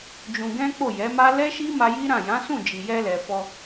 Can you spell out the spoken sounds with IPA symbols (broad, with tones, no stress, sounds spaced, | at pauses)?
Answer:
d͡ʒ ũ˧ ɡ ɛ̃˦ k͡p o˦˨ j ɛ˨˦ m a˦ l ɛ˦ ʃ i˦ m a˧ j i˦ ɾ ã˦˨ j ã˨˦ s ũ˦˨ d͡ʒ i˨ j ɛ˧ l ɛ˨ f ɔ˧